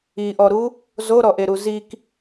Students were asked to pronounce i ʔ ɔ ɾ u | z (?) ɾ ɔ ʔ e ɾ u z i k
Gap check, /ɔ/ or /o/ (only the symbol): o